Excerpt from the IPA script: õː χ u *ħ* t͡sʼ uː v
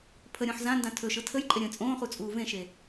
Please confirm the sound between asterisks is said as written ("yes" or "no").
no